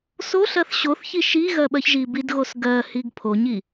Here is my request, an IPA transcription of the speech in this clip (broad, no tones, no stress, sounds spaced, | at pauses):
s o ɬ ɜ θ ɕ o θ ç i ʃ i ɣ ɜ ɓ ɜ ç ʒ i b i d ɣ o s ɡ ɜ h i ɡ pʰ o ɲ i